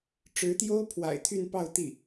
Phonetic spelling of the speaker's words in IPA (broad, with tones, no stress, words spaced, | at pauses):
ʈ͡ʂɻ̩˧˥t̪jo˥ʊ̯pʰwa̰˨˩ɪ̯ t̪ʰy˥˧npɑ˥˧ʊ̯t̪i˥˩